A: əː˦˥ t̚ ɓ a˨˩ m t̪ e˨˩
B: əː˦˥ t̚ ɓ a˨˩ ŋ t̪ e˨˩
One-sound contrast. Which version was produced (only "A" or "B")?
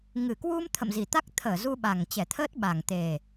B